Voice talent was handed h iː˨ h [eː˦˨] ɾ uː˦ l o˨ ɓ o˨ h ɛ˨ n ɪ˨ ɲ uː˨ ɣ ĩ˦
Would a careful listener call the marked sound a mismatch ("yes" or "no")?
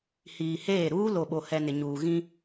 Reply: no